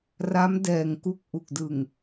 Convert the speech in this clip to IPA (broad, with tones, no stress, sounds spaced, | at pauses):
r a˦˥ m d ɛː˧ ŋ k u˥˩ k̚ ʔ u˨˩ k̚ d ɯ˨˩ ŋ